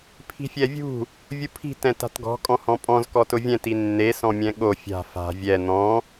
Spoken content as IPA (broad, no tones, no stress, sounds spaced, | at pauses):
pʰ i̤ fʲ ɛ vʲ ṳ | vʲ u pʰ i̤ t ɛ̃ t a̤ t ɡ ɔ̤ kʼ ɔ̃ h ɔ̃ pʼ ɔ̃ z k ɔ t ʊ vʲ ɛ̃ t i nː e s ɔ̃ mʲ ɛ̃ ɠ o fʲ a̤ f a̤ vʲ ɛ n̪ ɔ̃